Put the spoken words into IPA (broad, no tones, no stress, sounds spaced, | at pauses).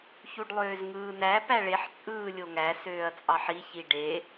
ç u ɖ lˠ øː z ŋ ɯː n æ p æ ɭ e ħ t͡sʼ ɯː lʲ o ŋ æ s øː ɐ̯ t͡sʼ ɑ ħ i ç i ɖ e